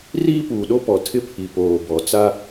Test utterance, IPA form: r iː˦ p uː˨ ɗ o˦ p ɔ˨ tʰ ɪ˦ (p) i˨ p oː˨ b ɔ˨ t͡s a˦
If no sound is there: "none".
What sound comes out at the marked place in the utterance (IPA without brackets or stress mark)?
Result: pʰ